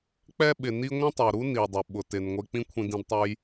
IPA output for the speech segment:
k͡p ɛ˥ ɓ ɪ˩ n i˥ ŋʷ ĩ˥ tˤ o˩ ɾ u˥ n i˩ dˤ ʊ˩ ɓ ʊ˩ t ɪ˩ n ŋʷ e˧ k͡p ĩ˥ kʷʰ ĩ˧ d ĩ˧ d tˤ u˧ j

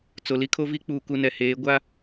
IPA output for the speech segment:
t͡s o˨ l i˦ kʰ o˦ v i˦ k͡p uː˨ k u˨ n ɛ˨ h eː˨˦ ɡʷ a˦

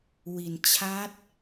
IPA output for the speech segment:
w i˩˦ n t͡ɕʰ a˦˥ t̚

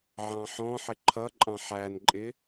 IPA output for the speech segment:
ʕ ɑ̃ ħ ɔ̃ ħ ɪ ǃʰ ʌ ǃʼ ɑ̃ ħ æ n ǃʼ ɪ

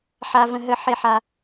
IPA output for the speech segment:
ħ a˩ v ə̃˩ ɦ ə˩ ħ e˩ ħ a˩

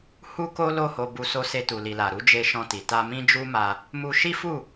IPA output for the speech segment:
h u˦ k o˦ l o˦˨ h o˧ b u˧ s o˧ s e˧ t u˨ l i˨ l a˨ ɾ u˨˦ d͡ʒ e˧ ʃ ɔ̃˧ t i˨ t a˧ m ĩ˦ d͡ʒ u˦ m a˧ | m u˧ ʃ i˦ f u˦˨

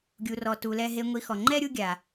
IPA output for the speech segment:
ɡʲ u˨ r ɔ˨ t u˨ l ɛ˧ ɦ e˧ ŋʷ i˧ x ɔ˨ ŋ͡ǃ ɛ˦ ɾʲ u˧ ɡʲ a˨

